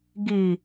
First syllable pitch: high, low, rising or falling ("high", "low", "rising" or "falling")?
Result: low